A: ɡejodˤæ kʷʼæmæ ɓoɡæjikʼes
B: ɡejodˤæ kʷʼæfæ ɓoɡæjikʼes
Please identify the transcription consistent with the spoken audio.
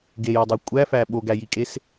B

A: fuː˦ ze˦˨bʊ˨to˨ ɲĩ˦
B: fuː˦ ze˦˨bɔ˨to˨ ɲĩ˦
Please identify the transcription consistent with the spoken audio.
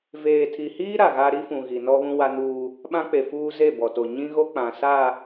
B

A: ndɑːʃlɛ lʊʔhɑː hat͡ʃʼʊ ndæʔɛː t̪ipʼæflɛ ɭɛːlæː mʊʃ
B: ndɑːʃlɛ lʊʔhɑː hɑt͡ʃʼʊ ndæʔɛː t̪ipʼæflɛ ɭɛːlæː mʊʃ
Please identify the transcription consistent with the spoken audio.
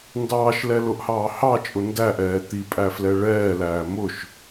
B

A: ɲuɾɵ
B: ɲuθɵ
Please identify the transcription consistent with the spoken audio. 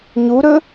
A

